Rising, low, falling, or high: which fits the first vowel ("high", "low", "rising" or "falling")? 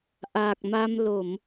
low